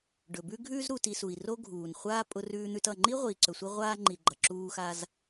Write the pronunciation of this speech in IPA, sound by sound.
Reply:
ɖ ɵ˩ b ʉ˦ ɡʱ ʉː˦ z ɾ u˨ t i˨ s u˩ i̯ r o˦ ɡʱ uː˩ n χʷ aː˥ pʼ ʊ˦ r ʉː˦ n̪ ʉ˦ t ʌ˨ ŋ͡ǃ i˥ ʁʷ iː˨ ǀ ɵ˨ sʷ i˦ ʁʷ aː˦ ŋ͡ǃ i˨ ɡ͡ǃ ʌ˩ ǁ uː˦ x a˦ z

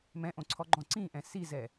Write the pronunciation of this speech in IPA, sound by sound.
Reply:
m ɛ̃ ʔ õ ǀʰ ɔ ɡ͡ǃ ɔ̃ ǀ ĩ ʔ ɛ̃ s i z ɛ

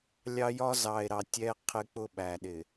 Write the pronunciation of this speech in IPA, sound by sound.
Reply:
lʲ ɑ˦ j ɒ˦ z ɑ˨ e̯ ɾ ɑ˨ tʲ ɛ˦ qʰ ɪ˦ k͡p ʊ˦ ɓ æ˨ ɗ ɪ˨

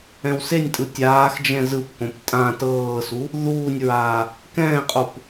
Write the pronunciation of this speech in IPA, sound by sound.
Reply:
ɛ̃ w s e nʲ tʼ ɯ tʲ aː x d͡ʒ ɛ̃ z ɯ p k õ p tʼ ã t ɤː s u | ð uː nʲ ɹ aː | k ɛ̃ː qʼ o p

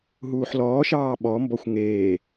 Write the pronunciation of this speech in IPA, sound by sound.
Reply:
ɦ uː ħ l ɔː ʃ ɑː ɓ ɔ m b ɔ xʷ ŋ eː

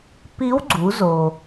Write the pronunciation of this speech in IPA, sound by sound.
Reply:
p i˧˥ w ɡ͡ǀ u˩˧ z o˩

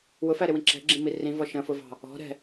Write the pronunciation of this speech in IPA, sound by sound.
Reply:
w ʊ f æ ɾ ɪ w ĩ ǁ ɛ̤ ɡ͡ǁ ĩ m i r ĩ v ɔ ʃ ə̃ f ʊ v ɑ̤ | ɔ̤ ɾ ɛ̤

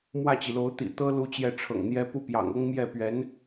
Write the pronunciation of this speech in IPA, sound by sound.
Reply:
m w ä˥˩ t͡ɕ i˩ l o˧˥ ʊ̯ t̪ ḭ˨˩ t̪ ɤ˥ l u˥ t͡ɕ j ɛ˥˩ ʈ͡ʂʰ ɤ̰˨˩ ŋ n̪ j ɛ˥ p u˥ p j ɑ̰˨˩ ŋ ɤ˥ ŋ m j ɛ˥˩ p ɥ ɛ˧˥ n

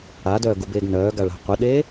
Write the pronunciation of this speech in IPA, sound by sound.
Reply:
a d œː ɡ u b eː ɡ n œː ɡ a ɭ a̤ qʷ ə ɗ e

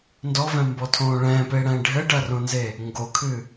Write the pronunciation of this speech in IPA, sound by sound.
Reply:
n d ɔ v ɛ̃ m b ɔ tʰ õː ɭ ɛ̃ː p e ɽ ɛ̃ː ɖʱ ɘ ɖ ɐ r õ n z e | ŋ ɡ o kʰ ɨ

